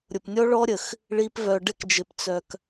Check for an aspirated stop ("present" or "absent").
absent